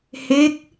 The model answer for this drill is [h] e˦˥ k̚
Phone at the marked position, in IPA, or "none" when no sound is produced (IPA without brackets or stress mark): h